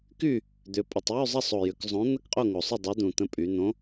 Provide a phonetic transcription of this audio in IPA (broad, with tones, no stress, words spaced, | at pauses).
ky˥˨ | d̪ʏ˩˧pʼʏ˨˩tˤ jy˥˨zˤɐ˥˨sˤo˨˩jʏ˩˧k zˤõ˨˥ n̪ə˥˨kqʼo˥˨ŋo˨˩sˤʏ˥˨ dˤɵ˨˥d̪ũ˨˩t̪ə̃˨˥ pʼy˩˧n̪õ˨˥